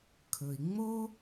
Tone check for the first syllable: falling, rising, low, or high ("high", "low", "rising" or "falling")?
low